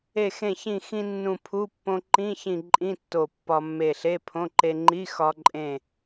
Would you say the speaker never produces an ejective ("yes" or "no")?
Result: no